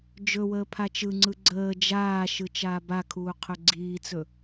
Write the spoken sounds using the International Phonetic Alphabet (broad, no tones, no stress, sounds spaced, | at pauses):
d͡ʒ ɵ w əː pʰ a t͡ʃ ɯ ŋ͡ǀ ɯ ɡ͡ǀ əː d͡ʒ aː ʃ ɯ t͡ʃ aː b a kʰ uː qʰ ɵ ɡ͡ǀ iː t͡s ɵ